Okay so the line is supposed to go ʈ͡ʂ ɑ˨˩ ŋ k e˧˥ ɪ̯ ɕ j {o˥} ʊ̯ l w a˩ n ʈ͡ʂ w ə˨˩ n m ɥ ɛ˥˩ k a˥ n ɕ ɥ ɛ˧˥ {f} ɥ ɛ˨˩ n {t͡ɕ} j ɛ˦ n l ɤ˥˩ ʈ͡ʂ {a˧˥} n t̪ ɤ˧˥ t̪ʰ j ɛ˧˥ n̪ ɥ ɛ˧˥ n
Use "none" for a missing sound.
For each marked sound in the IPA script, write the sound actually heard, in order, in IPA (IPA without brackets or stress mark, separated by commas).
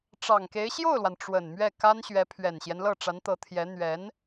o˥˩, pʰ, ɕ, a˧˥